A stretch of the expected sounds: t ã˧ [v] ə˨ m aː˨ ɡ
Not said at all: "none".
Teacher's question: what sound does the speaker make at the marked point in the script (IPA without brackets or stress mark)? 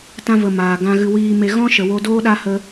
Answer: v